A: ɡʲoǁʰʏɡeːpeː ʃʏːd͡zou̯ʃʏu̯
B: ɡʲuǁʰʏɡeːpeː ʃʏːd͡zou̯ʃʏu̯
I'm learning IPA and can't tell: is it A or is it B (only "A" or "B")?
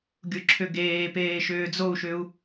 B